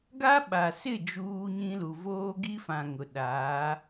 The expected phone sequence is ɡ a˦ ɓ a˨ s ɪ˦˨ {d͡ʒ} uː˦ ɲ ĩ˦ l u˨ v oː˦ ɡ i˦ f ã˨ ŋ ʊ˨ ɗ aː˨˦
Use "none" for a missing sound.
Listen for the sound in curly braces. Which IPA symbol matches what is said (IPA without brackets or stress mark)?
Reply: d͡ʒ